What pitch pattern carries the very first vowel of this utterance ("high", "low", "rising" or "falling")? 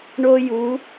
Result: high